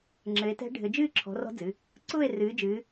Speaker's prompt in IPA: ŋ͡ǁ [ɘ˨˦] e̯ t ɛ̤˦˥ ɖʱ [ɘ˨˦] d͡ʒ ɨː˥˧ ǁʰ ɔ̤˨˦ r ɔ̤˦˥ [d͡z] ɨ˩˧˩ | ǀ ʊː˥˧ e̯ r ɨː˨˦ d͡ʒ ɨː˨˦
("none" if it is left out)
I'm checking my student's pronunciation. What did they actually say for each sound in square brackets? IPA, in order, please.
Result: ɘ˨˦, ɘ˨˦, d͡z

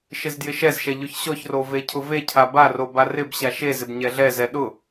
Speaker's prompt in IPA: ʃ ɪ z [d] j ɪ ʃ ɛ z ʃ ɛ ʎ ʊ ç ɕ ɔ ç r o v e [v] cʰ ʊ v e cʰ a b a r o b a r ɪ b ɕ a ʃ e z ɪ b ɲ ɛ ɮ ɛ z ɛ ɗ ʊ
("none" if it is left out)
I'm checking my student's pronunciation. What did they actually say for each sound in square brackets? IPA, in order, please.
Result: d, none

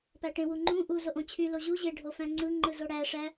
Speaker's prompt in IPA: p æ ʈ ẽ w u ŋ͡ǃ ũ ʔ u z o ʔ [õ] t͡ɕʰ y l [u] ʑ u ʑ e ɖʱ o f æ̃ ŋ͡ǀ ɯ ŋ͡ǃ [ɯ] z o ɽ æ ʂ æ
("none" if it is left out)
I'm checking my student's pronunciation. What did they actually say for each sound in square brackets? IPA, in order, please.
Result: õ, o, ɯ

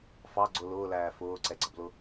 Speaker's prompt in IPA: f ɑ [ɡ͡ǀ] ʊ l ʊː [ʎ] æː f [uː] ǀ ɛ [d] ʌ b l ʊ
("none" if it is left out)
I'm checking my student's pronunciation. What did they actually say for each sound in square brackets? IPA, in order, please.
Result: ɡ͡ǀ, l, ʊː, ɡ͡ǀ

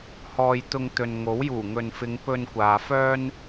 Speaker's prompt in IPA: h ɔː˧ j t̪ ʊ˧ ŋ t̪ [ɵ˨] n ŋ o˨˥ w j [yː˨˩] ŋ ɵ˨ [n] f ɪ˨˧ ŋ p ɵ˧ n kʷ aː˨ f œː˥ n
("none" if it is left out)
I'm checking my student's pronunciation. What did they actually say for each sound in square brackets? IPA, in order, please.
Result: ɵ˨, uː˨˩, n

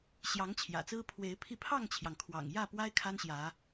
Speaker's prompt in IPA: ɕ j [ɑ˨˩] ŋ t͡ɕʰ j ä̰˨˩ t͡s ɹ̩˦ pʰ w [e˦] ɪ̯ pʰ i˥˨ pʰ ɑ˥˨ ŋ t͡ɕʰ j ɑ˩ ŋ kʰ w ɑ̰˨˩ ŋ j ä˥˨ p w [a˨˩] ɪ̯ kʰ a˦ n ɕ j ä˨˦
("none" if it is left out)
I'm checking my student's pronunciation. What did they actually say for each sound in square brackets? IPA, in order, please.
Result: ɑ˨˦, e˨˦, a˦

